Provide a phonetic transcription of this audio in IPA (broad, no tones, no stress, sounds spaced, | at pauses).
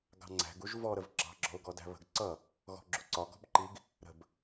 ɡ ɑ̤ ŋ͡ǀ æ̤ ɡ u ʒ v ɔ ɾ ə v ɡ͡ǁ ɑ̤ ɡ͡ǁ ɔ̤ ʊ̯ ɡ ɔ d æ̤ β ə̤ ɡ ǀ ʌ | ɣ ɔ̤ ɡ͡ǁ u ǀ ɒ ɡ ɔ̤ b ǃ i ɡ | ɾ ə̤ b